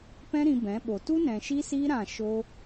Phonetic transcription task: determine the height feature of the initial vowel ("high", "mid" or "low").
mid